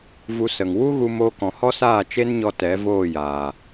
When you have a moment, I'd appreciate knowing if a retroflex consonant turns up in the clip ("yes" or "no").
no